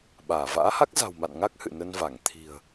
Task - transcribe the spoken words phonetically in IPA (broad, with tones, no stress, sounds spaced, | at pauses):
ɓ aː˧˩ v a̰ː˧˥ h a˦˥ k̚ z a̤˨˩ w m a̰˧˨ n ŋ a˦˥ k̚ h ɨ̰˧˨ n ə˧ n v a˧˩ ŋ t̪ʰ i̤˨˩ ə̯